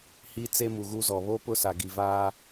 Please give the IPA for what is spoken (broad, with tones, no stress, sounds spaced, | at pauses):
h i˦ t͡s e˦ m u˨ ɣ u˦ z ɔ˨ β o˦ p ʊ˦ s a˨ ɡ i˨ v aː˦